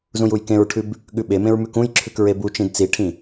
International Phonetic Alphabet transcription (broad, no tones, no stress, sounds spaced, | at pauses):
z ũ j u j k ẽ ɹ ʈʰ ʉ b | ɠ ʉ ɓ e m ẽ ɹ m ʉ k ũ j ǁʰ ʉ k ɹ e b u t͡ʃ ĩ d t͡s i ʈʰ ĩ